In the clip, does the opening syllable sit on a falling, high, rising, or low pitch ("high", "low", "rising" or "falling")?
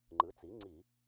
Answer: rising